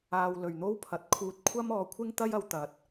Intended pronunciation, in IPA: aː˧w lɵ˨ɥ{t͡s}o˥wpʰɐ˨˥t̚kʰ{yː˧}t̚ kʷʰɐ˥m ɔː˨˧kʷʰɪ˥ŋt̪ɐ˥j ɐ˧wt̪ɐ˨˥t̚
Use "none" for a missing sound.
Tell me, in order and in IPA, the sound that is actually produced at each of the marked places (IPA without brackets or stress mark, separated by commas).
n̪, uː˧